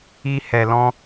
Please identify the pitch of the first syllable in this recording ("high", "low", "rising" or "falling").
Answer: high